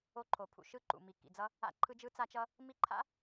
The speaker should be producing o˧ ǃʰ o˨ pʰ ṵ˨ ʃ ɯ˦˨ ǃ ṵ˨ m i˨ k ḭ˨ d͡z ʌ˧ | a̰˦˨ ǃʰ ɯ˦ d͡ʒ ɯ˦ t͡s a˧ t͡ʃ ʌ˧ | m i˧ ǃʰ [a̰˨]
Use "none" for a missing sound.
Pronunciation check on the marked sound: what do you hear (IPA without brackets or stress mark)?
a̰˦